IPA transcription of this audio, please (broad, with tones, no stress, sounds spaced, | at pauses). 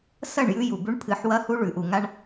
s ɐ˦˨ ɳ j ʉ˦ j u˨ b ʉ˦ ɳ pʰ ɨ˨˦ ħ w ɐ˦ h u˦ ɭ ʉ˨ ʔ u˨ ŋ a˦ ɳ